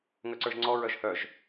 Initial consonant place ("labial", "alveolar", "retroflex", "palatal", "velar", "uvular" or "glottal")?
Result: velar